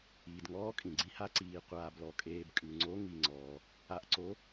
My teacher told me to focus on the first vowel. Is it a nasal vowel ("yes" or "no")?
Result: no